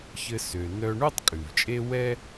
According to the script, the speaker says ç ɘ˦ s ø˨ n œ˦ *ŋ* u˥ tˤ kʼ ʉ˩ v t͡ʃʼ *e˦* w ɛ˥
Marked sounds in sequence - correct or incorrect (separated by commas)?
incorrect, correct